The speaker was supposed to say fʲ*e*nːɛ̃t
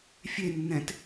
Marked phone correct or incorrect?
correct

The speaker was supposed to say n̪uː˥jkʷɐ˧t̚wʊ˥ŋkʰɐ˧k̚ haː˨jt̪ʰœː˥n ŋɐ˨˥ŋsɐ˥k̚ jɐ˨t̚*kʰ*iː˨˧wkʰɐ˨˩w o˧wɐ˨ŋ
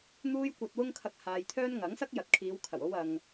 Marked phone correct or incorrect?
correct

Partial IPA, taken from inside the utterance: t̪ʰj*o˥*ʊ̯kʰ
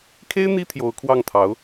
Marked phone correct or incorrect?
incorrect: o˧˥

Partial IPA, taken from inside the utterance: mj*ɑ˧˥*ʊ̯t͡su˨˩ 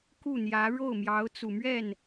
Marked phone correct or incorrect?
correct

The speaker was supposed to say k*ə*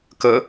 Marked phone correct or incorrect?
correct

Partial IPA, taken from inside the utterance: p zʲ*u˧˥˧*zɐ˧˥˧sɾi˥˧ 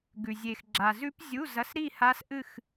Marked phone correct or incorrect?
correct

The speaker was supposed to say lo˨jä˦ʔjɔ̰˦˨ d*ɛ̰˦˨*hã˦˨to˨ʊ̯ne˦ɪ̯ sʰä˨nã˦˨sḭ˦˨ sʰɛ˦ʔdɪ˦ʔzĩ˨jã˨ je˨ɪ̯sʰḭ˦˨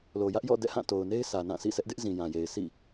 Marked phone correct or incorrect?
correct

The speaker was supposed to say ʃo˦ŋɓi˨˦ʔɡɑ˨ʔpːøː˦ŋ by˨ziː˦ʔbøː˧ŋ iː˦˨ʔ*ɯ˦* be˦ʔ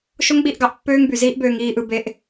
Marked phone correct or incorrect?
incorrect: ɯ˧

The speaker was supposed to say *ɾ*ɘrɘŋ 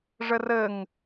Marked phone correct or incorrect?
incorrect: ʐ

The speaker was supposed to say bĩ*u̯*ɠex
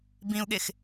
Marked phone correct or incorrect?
correct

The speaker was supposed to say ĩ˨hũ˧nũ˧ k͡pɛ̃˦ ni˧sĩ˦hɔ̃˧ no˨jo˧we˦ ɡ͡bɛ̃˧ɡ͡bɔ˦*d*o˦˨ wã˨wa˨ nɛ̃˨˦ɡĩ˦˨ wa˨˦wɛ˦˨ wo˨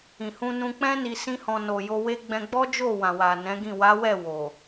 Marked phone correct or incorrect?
incorrect: d͡ʒ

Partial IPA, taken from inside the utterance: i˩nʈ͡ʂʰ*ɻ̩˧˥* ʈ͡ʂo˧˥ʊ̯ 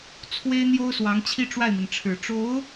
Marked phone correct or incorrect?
incorrect: ɻ̩˨˩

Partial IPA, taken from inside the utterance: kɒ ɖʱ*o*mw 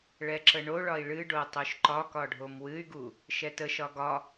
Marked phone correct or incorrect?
correct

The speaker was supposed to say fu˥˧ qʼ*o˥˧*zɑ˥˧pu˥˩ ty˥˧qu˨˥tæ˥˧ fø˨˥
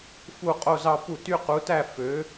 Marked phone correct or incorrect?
correct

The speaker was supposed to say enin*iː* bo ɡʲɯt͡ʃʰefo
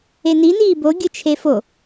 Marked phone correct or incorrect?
correct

